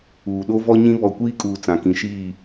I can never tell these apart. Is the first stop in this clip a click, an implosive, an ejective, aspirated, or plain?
implosive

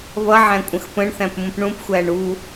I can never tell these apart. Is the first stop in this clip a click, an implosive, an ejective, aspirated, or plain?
ejective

